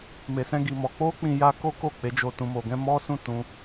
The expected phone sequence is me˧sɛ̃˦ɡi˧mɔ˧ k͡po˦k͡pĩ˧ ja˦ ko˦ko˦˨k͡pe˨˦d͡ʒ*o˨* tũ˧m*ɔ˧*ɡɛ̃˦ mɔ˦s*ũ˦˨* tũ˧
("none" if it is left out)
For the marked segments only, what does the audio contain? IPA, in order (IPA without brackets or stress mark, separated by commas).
o˧, o˧, ũ˦˨